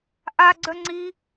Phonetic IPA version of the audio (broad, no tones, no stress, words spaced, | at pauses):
ʔaɡ͡ǀœ ŋ͡ǀi